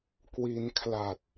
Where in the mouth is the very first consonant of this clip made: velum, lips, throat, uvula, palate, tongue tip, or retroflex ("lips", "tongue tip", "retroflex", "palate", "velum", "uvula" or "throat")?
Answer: velum